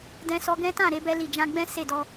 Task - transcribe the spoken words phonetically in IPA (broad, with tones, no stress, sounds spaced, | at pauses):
d ɛ̃˧ s ɔ˧ ɡ ɛ̃˦ t ã˦˨ ɾ e˧ b ɛ˧ l i˨ d͡ʒ ã˧ ɡ͡b ɛ̃˦ s e˦˨ d ɔ˧